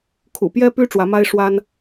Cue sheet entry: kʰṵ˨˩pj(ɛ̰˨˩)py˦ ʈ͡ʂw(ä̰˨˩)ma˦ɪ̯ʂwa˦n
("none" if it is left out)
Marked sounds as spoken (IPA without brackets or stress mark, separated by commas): ɛ˦, ä˨˦